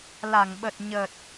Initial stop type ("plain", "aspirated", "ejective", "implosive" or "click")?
implosive